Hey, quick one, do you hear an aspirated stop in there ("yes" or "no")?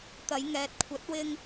yes